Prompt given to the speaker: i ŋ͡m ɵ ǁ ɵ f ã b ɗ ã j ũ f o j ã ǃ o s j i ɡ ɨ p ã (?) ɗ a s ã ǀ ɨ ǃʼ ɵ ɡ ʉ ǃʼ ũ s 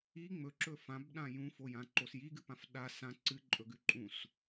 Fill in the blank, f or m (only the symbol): f